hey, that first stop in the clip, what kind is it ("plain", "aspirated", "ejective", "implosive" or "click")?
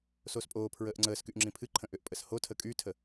ejective